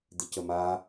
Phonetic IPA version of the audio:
d̪ɪcəma

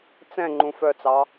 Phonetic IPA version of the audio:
t͡sɛ̃ ŋ͡ǃũfœt͡sɑ

